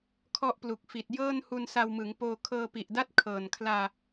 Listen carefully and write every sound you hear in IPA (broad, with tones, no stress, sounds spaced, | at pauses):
kʰ ɔ˦˥ ʔ p l u˨˩ k̚ f i˨˩ t̚ j ɤː˥˩ n h u˧ n s a˧ w m ɯ˩˦ ŋ p oː˧ kʰ ɤː˧ p i˨˩ ʔ d a˥˩ t̚ kʰ ɤː˨˩ n kʰ l aː˧